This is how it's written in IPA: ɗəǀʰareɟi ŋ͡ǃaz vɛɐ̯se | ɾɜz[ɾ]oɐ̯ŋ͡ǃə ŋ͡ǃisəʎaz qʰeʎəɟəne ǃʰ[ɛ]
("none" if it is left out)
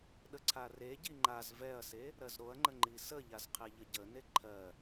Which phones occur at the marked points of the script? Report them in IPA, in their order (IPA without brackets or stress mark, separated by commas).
ɾ, ɜ